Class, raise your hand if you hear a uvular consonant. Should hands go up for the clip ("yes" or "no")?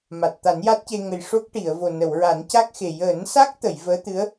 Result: no